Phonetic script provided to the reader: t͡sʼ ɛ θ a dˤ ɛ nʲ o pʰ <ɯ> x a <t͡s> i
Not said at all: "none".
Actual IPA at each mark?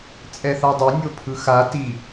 ɯ, t

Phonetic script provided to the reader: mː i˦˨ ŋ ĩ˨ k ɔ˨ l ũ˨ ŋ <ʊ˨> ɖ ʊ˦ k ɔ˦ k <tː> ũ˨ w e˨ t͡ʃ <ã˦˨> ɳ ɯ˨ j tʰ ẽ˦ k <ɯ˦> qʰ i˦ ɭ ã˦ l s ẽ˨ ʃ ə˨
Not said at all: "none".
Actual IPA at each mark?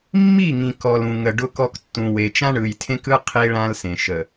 ə˨, tː, ã˦, ɯ˦

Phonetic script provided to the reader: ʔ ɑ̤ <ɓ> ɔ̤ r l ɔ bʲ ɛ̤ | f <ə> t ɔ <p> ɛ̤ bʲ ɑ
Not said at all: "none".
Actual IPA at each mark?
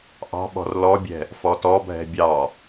ɓ, ɔ, bʱ

